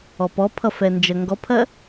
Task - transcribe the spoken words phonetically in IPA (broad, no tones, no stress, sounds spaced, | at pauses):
ɔ p ɔ pʰ ʌ f ɛ n d͡ʒ ɜ ŋ ɡ ɔ pʰ ɜ